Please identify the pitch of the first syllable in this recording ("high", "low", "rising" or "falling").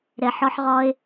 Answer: low